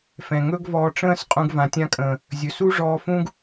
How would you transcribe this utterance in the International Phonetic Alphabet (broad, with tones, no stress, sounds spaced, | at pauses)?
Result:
f ɛ̃˨ ŋ ɵ˦ ɡ v ɔː˧ ʈ͡ʂ ə̃ː˦ s qʼ ũ˧ ɡ v ã˨ tʲ ã˧ kʼ ə̃ː˨ | zʲ ɵ˨ s u˦ ʐ ɔː˧ f ũ˦ ɡ